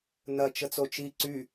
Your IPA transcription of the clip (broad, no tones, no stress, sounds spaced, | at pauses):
n ɐ t͡ʃ ə t͡s o t͡ʃ i ǀ y